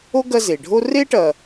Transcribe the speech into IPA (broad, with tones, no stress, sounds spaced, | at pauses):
o˥ ɡ ɐ˦ z e˩ ɖʱ o˥ r e˥ ʈ ɐ˨